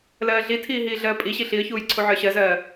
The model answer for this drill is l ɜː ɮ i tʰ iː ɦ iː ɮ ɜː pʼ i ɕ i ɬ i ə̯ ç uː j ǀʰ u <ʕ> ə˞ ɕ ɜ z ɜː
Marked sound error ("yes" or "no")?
no